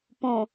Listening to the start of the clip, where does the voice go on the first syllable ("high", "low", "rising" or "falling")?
low